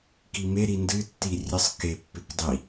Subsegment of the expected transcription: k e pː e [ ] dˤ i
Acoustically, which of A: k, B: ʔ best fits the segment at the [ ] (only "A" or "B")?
A